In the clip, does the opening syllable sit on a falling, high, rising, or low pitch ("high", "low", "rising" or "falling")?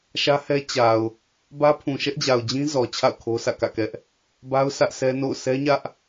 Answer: high